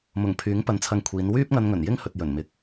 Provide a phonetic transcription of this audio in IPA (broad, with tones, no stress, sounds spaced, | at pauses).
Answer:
m ʊ˨˩ ŋ pʰ yː˨˥ ŋ p ɐ˨˧ n t͡sʰ ɐ˧ ŋ kʷʰ iː˨˧ n w yː˥ p̚ ŋ ɐ˧ n ŋ ɵ˨˩ n j ɪ˥ ŋ h ɵ˨ t̚ j ɵ˨˩ n m ɪ˨ k̚